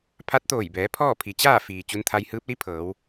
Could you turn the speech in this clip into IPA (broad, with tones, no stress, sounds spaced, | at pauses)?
pʰ a˧˥ t̚ t̪ oː˧˩ j b ɛː˩˧ pʰ ɔː˥˨ pʰ i˩˧ t͡ɕ aː˥˨ f iː˩ t͡ɕ u˧ n t̪ʰ a˧ j h ɯː˧˥ p̚ l i˧˥ pʰ ɤː˩˧ w